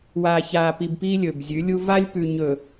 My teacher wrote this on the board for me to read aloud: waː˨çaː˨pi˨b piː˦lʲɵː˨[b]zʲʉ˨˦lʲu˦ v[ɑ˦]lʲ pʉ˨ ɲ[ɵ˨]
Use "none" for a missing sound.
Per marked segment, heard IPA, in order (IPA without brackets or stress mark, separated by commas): b, a˦, ɵ˨